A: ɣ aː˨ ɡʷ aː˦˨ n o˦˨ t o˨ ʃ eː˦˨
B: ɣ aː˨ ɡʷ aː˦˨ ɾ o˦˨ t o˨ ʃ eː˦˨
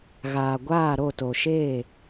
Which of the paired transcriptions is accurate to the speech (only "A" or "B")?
B